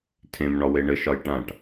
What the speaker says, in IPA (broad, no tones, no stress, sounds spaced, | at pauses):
tʰ ẽ m ɳ ɒ w e ɳ ɘ ʃ ɒ j ʈ ã ʈ